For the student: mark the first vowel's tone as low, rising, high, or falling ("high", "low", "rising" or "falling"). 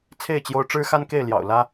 falling